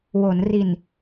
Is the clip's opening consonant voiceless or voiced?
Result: voiced